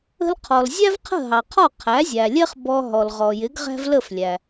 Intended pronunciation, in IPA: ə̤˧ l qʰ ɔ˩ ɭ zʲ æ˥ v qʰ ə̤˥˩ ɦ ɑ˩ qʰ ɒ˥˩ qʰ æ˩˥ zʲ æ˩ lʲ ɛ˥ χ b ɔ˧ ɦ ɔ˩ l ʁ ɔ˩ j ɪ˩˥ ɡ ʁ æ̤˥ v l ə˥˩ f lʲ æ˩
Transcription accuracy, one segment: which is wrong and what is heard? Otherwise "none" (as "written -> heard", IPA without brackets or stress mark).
ɭ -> l